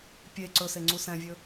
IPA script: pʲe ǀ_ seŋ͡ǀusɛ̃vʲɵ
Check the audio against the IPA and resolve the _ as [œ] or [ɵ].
ɵ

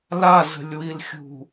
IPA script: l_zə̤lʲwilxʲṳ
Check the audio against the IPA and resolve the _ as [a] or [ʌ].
a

